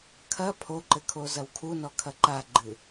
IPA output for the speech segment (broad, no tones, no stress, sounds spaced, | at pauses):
kʰ ɐ pʰ o ǃ ɘ kʰ o z ɐ w kʰ u n ɔ kʰ ɐ ǃ a ɡ͡ǃ ɨ